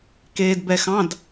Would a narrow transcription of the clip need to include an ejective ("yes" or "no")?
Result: no